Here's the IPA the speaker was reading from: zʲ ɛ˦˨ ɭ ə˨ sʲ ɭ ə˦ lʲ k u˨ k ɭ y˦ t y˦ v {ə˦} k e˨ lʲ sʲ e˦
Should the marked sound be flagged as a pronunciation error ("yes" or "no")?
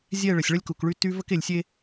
no